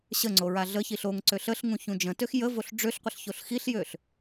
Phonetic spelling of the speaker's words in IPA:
ɕ ə ŋ͡ǀ o ɹ a ɮ ə ç i ɬ o ŋ ǀ ø ɬ ə ɬ ŋ ũ ç ũ d͡ʒ ə̃ t ø x j ə v o ɬ ɖ͡ʐ ø ɬ qʷ ə ɬ ç o ɬ x i ɬ j ø ɬ

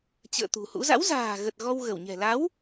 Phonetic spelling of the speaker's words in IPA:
t͡ɕ ə̰ː˧˨ t̪ ṳ˨˩ h ṵ˧˥ z a̰˧˥ w z a̤ː˨˩ ɣ ə˨˩ t̚ ɣ ɔ˧ w ɣ ə˧˩ w ɲ ɛ̤˨˩ l a˨˦ w

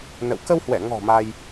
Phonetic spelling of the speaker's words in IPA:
n ə̰˧˨ w k ə˧ w h w ɛ˧˩ ŋ ɔ̤˨˩ m a˧ j

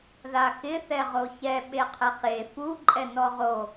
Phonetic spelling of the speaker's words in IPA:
ð a x ɪ θ ɛ ʁ o ç ɛ ɓ e qʰ ɪ χ e f u ǃʼ ɛ n ɔ ʁ o

